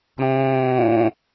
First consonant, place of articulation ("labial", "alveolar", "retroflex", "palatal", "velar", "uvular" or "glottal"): alveolar